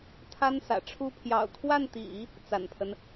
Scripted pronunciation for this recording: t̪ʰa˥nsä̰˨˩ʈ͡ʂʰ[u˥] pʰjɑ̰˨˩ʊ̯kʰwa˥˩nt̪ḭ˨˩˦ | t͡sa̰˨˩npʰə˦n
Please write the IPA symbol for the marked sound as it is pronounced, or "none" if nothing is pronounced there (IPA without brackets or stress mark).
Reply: u˥